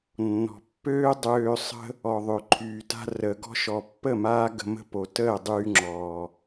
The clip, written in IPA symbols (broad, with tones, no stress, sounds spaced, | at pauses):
nː ɔ̤˨ pː øː˦ dˤ øː˧ sˤ ə̤˦ | ɔ˨ ðˤ ø˨ ǃʰ yː˨ t a̤˧ r əː˨ ɡ ɔ̤˧ ʃ ɔ˨ pː ə˦˨ m aː˦ ɡ ə̤˧ m ə̤˦ p o˨ t əː˦˨ dˤ yː˧ ŋ͡ǁ ɔː˨